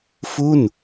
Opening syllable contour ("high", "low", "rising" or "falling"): falling